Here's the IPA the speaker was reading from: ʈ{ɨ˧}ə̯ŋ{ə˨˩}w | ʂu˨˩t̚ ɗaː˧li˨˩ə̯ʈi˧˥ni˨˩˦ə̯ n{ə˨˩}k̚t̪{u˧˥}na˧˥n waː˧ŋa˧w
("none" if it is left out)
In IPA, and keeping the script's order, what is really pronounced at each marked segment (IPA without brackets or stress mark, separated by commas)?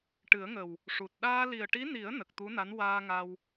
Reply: ɨ˨˩˦, ə˨˩, ə˨˩, u˧˥